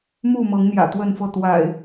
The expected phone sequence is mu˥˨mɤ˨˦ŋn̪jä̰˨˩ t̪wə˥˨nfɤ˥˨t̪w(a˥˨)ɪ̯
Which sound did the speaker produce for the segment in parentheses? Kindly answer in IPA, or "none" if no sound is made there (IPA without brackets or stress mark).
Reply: a̰˨˩